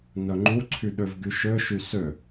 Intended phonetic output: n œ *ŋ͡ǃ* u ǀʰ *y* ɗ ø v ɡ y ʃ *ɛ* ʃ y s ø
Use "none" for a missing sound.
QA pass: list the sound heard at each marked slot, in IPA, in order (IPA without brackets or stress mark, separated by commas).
ŋ͡ǃ, y, ø